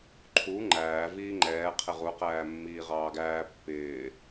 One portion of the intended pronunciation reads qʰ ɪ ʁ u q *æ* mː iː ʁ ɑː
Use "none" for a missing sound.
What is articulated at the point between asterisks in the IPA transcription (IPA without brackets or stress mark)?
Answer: æː